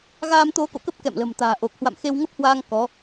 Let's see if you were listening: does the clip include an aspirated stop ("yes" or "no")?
no